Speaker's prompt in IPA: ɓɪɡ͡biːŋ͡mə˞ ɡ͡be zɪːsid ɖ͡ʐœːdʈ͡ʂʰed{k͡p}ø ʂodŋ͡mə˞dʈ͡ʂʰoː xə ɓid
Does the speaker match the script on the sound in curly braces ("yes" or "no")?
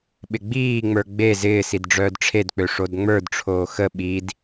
yes